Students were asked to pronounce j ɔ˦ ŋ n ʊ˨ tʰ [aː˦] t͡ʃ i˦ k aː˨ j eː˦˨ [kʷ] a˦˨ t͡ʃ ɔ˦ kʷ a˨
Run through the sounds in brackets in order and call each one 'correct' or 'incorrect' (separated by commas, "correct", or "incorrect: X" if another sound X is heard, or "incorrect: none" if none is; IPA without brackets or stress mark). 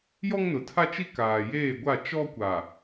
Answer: incorrect: a˦, incorrect: ɡʷ